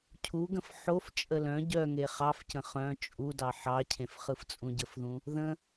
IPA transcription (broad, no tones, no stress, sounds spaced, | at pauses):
cʰ u ɡ ə̃ f ħ o f t͡ʃʼ ə l œ̃ ɟ œ ŋ e χ ɑ f c ə̃ χ œ̃ t͡ʃʼ u d ɑ ħ ɑ cʰ ẽ f χ ɯ f t͡sʼ ũ ɟ ə f ð ũ | ð ə̃